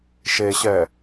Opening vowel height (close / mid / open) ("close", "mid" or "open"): mid